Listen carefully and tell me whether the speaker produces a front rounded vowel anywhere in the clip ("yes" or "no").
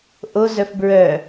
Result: yes